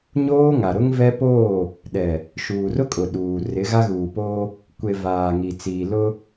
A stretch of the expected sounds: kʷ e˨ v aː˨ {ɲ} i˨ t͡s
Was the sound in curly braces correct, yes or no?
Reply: no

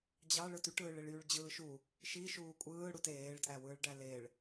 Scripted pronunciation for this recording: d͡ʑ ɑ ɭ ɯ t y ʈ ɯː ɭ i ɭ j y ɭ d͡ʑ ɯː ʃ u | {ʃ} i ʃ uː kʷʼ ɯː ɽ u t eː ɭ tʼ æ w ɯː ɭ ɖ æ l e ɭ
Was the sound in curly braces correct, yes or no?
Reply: yes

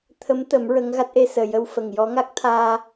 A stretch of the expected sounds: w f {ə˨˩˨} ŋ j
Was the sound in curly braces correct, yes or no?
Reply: no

